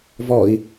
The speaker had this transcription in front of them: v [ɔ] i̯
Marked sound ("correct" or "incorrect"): correct